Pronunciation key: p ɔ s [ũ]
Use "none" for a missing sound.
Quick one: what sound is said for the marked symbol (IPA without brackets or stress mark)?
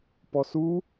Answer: u